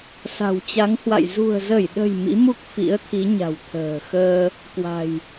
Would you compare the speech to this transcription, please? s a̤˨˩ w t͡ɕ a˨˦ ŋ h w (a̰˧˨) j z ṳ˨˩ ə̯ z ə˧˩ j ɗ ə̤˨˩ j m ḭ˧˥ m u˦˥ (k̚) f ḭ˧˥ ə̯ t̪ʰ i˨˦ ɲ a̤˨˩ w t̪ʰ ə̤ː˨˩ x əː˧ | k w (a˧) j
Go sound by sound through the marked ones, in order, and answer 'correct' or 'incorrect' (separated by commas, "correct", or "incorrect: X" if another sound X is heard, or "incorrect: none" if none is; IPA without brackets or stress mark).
correct, correct, incorrect: a̤˨˩